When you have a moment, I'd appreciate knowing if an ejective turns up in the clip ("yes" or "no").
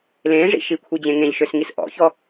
no